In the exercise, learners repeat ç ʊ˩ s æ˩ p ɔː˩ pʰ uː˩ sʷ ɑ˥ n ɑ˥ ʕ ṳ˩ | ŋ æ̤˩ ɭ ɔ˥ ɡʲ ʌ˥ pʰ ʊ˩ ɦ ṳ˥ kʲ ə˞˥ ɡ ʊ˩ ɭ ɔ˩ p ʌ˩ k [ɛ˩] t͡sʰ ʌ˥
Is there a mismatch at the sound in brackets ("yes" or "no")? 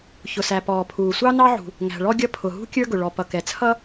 no